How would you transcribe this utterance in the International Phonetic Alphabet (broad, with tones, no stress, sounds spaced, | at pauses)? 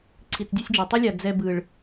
ǀʰ i˨ t͡s dʲ e˦ sʲ d͡ʒ o˨ tˤ i˦ lʲ a˨ d͡z ɛ˦ b ɯ˨ ɭ